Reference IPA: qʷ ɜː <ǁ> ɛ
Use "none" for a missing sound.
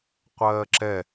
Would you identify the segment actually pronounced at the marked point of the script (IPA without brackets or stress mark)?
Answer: ǁ